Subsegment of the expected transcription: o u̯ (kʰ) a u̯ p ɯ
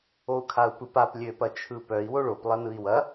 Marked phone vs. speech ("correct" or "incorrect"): correct